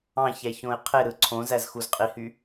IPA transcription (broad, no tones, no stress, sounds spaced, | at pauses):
ɑ̃ ç æ ç õ ɪ̯ qʰ e ɾ ɯ ǀʰ õ z æ z x u z qʼ i h y